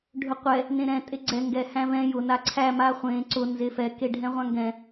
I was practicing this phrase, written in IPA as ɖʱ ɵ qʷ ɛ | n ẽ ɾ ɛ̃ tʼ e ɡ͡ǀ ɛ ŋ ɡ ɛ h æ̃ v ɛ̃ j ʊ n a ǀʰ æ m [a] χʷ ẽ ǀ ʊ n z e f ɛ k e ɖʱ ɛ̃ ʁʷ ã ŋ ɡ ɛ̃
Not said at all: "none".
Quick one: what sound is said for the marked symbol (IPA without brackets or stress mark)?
a